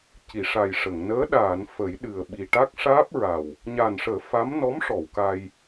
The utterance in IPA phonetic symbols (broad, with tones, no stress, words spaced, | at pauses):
ci˨˩˨ʂa˨˩j ʂə˨˩˨ŋ nəː˧˥ ɗaː˨˩˨n fə˨˩˦jɗɨ˨˩ə̯ɓi˨˩ ʈa˦˥k̚ʂaː˦˥p̚ɹa˨˩w | ɲa˨˩nʂəː˨˩˦ fa˧˥m nɔ˧˥mʂɔ˨˩˨w ka˧j